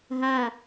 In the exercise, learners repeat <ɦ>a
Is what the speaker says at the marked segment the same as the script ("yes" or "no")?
yes